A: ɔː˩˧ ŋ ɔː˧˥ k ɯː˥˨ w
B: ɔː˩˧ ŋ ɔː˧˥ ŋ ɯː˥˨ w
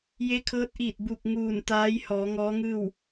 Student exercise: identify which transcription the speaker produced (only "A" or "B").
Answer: B